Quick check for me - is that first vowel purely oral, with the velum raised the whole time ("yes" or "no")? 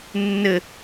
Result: yes